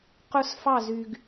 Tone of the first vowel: high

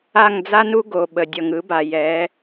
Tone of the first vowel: falling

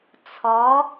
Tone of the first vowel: rising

